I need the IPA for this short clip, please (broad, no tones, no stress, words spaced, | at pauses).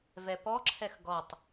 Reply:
vɛpɔǁʰɛx ɡɔtˤ